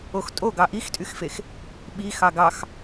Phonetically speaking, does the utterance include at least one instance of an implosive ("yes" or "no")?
yes